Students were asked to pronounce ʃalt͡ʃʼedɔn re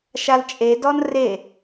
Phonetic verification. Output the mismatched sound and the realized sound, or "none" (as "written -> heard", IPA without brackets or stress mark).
none